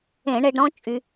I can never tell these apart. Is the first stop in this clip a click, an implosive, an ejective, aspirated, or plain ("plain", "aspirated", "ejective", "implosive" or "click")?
plain